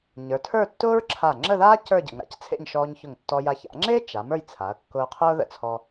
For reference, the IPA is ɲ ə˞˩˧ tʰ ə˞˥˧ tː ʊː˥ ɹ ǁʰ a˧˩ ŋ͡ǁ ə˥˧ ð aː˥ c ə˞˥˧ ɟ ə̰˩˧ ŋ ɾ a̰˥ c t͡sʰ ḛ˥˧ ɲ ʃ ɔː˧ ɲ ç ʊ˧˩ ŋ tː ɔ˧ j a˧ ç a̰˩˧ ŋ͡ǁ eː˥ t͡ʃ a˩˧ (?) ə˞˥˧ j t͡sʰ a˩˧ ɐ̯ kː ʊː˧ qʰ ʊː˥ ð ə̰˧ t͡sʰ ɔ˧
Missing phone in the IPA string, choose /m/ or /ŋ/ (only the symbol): m